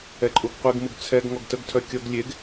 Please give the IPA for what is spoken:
ɛ ǃʼ u ɡ qʷ e ɡ m u ɡ t͡sʰ ɛ ɡ ŋ ɔ ɡ t ə ɡ tʰ œ kʲ ɔ ɡ lʲ e ɡ

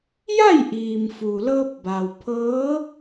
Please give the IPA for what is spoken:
j a˥˨ j ʔ iː˩ m f uː˩ l ɤː˧ p̚ b aː˩ w pʰ ɤː˧˥

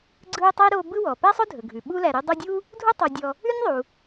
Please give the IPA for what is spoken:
ɡ͡ǀ ɯ˦ ʊ̯ tˤ e˥ ɾ o˦ b ɯ˦ w ɔ˩ p æ˥ sˤ ɵ˥ dʱ ɵ˩ ɡʱ ʉ˩ ɓ u˦ l æ˨ ɾ e˦ dˤ o˦ dʲ u˥ | dʱ u˦ tˤ o˨ dʲ ɔ˨ | ʉ˥ nʲ ðˤ u˩

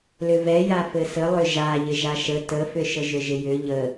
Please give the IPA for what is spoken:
l ʏ v ɛ j a f ɘ s ə lˠ ʏ ʒ a ʎ ɪ ʒ a ʃ ə t ə f ʏ ʃ ə ʒ ʏ ʒ ɪ j ʏ ʎ ə

